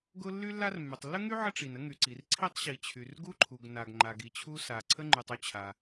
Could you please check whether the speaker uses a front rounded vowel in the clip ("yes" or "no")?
yes